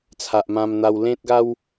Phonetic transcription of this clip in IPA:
t͡sʰ a˨ ʔ m ã˧ m n̪ a˧ w l ẽ˦ t̚ ɡ a˦ w

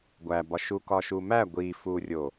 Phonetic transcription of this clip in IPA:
ɡʷ æ b ɒ ʃ u k ɒ ʃ u m æ ɡʷ i f u rʲ o

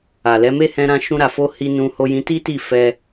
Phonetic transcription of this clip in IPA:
a˨ l ɛ˨˦ m e˦ h ɛ̃˧ ɾ ã˧ ʃ ũ˦ ɾ a˧ f o˦ h i˧ n ũ˧ h o˧ j ĩ˧ t i˦ t i˦˨ f ɛ˧

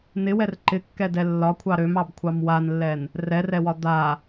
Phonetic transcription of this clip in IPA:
n ɪ w ɛ r ǃ ɪ kː ɛ d ɛ lː ɒ kʷʰ ɑ ɾ ø m ɑ b kʷʰ ɑ m w a n lː ɛ n | r ɛ r ɛ w ɒ d̪ a

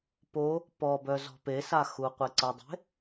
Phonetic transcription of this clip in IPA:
p o | p ɔ b œ z ɔ̤ p e s a x u qʷ e ǀ ə dˤ e̤

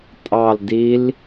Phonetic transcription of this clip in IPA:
tʼ ɑ l d i l

